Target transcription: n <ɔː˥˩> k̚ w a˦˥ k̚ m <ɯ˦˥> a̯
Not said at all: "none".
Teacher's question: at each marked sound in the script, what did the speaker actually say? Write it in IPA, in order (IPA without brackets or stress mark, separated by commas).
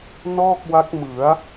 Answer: ɔː˥˩, ɯ˩˦